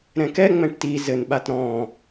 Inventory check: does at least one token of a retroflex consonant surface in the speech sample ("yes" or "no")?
yes